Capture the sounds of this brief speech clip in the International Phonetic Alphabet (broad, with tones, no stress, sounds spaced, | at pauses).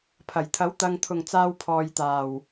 pʰ ɐ˨˩ j t̪ʰ ɐ˨˥ w t̪ ɐ˨ ŋ t̪ʰ ʊ˨˩ ŋ t͡s aː˧ w pʰ ɔː˨ j t̪ aː˨˩ w